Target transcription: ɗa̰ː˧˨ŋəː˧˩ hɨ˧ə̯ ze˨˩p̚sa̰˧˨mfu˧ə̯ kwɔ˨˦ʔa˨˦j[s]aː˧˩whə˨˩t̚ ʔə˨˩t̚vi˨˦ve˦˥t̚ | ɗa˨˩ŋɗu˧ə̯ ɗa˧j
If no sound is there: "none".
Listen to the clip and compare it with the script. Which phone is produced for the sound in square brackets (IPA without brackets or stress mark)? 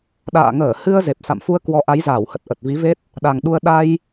z